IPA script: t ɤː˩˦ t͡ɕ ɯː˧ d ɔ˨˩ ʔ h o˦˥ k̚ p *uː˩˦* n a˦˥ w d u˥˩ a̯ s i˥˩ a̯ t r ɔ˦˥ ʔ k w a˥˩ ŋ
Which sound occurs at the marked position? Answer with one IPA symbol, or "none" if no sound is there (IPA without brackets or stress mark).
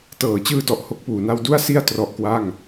uː˩˦